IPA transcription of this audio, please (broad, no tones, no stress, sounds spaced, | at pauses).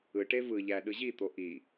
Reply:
ɯ ʈ e v ɯ ʎ æ ɗ ɯ ʑ i t̪ o ʔ i